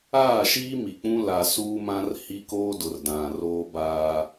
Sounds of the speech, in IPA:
aː˦˨ ʃ iː˦ m i˨ k͡p ũ˦ l a˨ s uː˦ m ã˦ r h i˦ k oː˦ d ʊ˨ r d ã˨ r oː˦ b aː˦

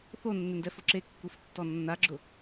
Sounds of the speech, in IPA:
θ o nː ɪ n d ɛ f ʊ ǁ e kː u f tː ɔ nː a ɡ͡ǁ ʊ

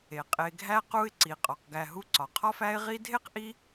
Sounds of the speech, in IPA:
e˩ qʼ e˨ ɡʱ æ˥ q u˦ ɪ̯ ǀ i˩ qʼ ɒ˩ q ɡ æ˨ ɦ u˦ ǀ ɒ˩ qʰ ɒ˥ f æ˦ ɪ̯ ʁ i˦ dʱ e˥ q ʔ i˦

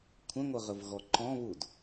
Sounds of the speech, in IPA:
kʷʰ ə̃ ŋʷ ə ʁ ə v ɣ ɔ ǃ ɔ̃ β u d

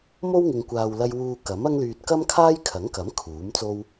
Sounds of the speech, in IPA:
m o˥ w ŋ ɪ˨ ŋ kʷ aː˨ w l ɐ˧ j w uː˧ k ɐ˨˥ m ɐ˥ ŋ l yː˧ t̚ k ɐ˥ m kʰ aː˥ j kʰ ɐ˨˥ ŋ k ɐ˨˥ m kʰ uː˨˥ m t͡s o˥ w

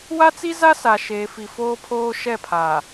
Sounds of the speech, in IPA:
w a˦ t͡s i˦ z a˦ s a˨ ʃ eː˨ f i˨ f oː˦ pʰ oː˦ ʃ ɛ˦˨ pʰ a˨

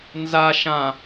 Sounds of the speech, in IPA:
n z a ʃ ã

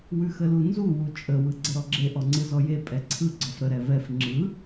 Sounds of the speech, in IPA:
w ʉ x ə l u n z u w u t͡ʃʼ ə w ɯ ɡ͡ǀ ə ɾ ɔ ɡ͡ǁ e ʔ ɔ ŋ͡ǀ ɯ z ɔ j e pʼ ɛ ǀʰ ɯ ɡ͡ǀ ɔ f ɾ ə ɾ ɛ v ɛ f ŋ͡ǁ ɯ

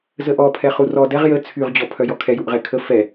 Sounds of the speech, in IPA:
z ə ʔ ɔ pʰ ɛ χ u r ɔ d ɛ ʁ j ə t͡sʰ y ʁ d͡ʑ ɔ pʰ œ j ɔ kʰ ɛ j u ʔ ʁ ɛ kʰ ə f ɛ

